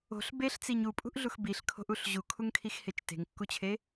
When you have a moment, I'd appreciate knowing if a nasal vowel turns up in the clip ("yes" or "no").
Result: no